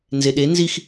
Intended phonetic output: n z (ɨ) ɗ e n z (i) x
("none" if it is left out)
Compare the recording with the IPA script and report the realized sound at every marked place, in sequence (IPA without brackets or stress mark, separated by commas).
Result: e, i